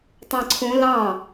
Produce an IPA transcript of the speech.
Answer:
tˤ ɑ̃ ǀʰ ũ l ɑ̃

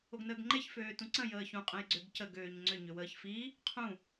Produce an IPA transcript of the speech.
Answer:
o ɡ n əː ɡ ŋ͡ǃ e ç f øː t ũ ǀ ə̃ j əː ç ũ qʼ ə̃ j ɡ͡ǀ ø ɡ c ə ɡ øː ɲ ŋ͡ǀ ʏ ɲ ʏ w əː ç f i | qʰ ũ

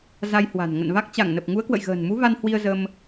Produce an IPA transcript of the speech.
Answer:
z a˧ j h w a̤˨˩ n ŋ ə̰˧˨ n v a˦˥ k̚ t͡ɕ a˧˩ ŋ n ə˨˩ p̚ ŋ u˨˦ ə̯ k w ə̰˧˨ j ɣ ə̤ː˨˩ n m u˨˦ v a˧ n h w i˧ ə̯ z ə˧ m

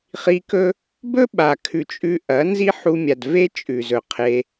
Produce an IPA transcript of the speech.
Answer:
χ i˧ k ɵ˦ | b ɵ˦ ɓ a˨ kʰ ʉ˨ t͡ʃʼ ʉ˧ ʔ ɐ˨˦ n z i˦ ħ u˧ mʲ a˨ d v e˦ t͡ʃʼ ʉ˨ z ɵ˨ qʰ e˧

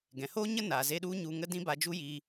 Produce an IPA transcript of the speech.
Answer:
ɡ ɛ̃˨ h oː˦ ɲ ə˦ n a˨ z e˧ ɗ u˦ ɲ u˧ ŋ ə˦ d ĩ˦ b a˧ d͡ʒ u˦ j iː˧

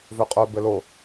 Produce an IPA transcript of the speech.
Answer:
v ø qʼ œ b ɘ l o

